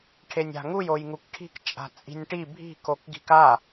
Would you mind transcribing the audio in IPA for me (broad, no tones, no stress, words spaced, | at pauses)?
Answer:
ʈʰenʲa̤ŋuj ojŋukʈʰi̤k t͡ʃʼa̤t͡sʼi̤nʲʈi bʱi̤ kokɡi̤ka